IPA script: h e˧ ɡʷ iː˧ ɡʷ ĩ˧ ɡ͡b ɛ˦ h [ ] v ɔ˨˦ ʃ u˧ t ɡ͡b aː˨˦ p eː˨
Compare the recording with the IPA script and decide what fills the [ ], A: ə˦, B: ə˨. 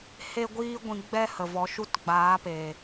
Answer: B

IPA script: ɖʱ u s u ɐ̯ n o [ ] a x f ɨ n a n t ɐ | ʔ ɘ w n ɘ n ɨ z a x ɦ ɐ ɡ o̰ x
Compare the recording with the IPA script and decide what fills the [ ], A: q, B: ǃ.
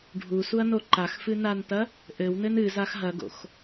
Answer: B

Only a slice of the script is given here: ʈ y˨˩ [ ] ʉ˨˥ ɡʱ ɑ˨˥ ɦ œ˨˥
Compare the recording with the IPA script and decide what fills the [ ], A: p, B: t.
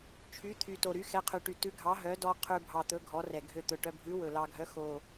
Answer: B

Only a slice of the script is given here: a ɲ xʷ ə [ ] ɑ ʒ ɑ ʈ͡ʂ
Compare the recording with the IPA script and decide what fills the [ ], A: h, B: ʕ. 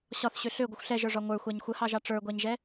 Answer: A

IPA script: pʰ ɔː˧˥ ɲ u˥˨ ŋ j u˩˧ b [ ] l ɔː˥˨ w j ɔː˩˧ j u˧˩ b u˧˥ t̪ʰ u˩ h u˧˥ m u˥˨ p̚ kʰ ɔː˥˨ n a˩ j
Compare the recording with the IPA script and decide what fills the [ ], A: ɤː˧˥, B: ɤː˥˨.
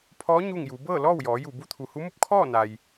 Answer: B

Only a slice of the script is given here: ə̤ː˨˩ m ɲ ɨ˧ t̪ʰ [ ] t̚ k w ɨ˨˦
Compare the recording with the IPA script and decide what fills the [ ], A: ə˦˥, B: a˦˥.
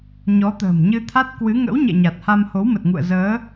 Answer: B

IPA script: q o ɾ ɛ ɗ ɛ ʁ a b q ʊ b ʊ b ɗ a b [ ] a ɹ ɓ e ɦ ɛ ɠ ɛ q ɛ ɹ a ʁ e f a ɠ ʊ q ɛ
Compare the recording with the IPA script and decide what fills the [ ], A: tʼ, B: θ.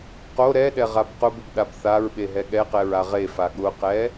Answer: B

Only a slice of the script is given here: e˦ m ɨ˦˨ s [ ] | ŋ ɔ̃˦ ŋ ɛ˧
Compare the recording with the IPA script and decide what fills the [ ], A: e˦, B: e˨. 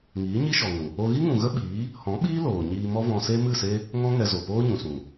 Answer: A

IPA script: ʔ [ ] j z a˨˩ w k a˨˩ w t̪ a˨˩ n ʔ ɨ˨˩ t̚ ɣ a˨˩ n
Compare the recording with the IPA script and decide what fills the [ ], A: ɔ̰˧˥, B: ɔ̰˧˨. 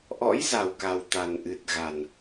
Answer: A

